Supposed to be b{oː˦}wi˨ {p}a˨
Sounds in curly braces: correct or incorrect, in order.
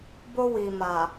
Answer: incorrect, incorrect

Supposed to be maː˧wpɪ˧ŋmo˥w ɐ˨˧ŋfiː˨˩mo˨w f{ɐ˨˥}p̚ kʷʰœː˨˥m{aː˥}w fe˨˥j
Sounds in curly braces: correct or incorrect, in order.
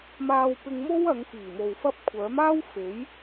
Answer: incorrect, correct

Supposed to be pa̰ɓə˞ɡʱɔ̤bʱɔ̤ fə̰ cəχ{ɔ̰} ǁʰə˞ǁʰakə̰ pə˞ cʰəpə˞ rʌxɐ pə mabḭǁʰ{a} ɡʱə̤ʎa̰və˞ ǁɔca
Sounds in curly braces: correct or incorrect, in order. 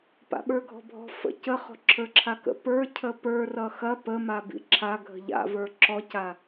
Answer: incorrect, correct

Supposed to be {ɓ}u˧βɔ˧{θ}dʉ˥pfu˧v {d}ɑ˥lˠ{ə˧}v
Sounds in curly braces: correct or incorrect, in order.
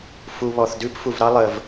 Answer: incorrect, correct, incorrect, correct

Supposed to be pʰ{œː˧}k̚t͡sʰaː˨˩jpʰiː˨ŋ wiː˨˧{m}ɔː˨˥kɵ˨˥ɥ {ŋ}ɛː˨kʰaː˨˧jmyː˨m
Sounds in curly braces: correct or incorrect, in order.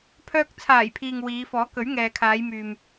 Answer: correct, incorrect, correct

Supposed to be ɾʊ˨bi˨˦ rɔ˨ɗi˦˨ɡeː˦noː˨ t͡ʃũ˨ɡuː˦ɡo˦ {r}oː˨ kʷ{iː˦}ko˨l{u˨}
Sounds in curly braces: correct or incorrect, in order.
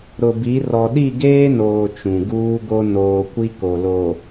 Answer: incorrect, incorrect, incorrect

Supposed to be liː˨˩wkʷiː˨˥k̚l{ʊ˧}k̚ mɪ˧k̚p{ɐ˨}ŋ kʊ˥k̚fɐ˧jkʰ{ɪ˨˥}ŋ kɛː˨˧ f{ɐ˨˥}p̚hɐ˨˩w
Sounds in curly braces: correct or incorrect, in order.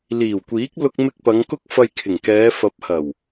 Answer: correct, incorrect, incorrect, correct

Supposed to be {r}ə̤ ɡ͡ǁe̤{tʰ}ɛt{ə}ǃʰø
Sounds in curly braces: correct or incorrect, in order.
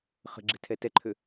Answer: incorrect, correct, incorrect

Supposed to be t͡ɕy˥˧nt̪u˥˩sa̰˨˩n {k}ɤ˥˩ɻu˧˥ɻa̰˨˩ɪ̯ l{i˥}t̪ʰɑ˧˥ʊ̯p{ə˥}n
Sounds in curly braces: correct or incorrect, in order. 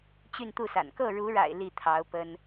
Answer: correct, incorrect, correct

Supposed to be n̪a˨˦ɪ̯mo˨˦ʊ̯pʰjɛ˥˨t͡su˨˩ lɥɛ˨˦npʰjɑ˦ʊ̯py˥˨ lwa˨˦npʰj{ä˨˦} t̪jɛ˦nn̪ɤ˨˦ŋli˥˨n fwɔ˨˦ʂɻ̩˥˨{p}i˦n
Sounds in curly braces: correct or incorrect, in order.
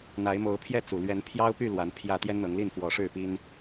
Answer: incorrect, correct

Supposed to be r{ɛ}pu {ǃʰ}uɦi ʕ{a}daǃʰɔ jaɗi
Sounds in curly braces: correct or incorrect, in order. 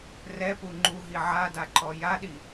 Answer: correct, incorrect, correct

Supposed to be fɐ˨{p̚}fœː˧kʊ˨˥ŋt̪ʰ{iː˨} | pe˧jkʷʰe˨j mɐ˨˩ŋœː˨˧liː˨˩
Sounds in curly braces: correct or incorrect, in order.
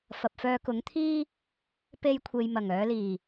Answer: correct, incorrect

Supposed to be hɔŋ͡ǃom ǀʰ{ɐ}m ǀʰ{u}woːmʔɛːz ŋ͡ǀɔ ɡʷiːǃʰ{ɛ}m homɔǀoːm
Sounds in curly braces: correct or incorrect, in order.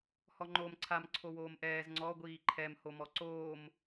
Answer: incorrect, incorrect, correct

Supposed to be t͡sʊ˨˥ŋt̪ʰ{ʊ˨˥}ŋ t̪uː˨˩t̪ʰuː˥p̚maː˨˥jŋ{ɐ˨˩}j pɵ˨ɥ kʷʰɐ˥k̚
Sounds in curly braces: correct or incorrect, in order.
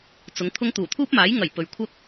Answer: incorrect, correct

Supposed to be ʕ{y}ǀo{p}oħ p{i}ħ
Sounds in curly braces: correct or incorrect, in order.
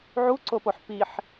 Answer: incorrect, correct, correct

